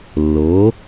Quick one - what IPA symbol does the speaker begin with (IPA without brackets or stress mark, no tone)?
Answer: lː